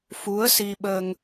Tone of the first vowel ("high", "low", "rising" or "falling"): rising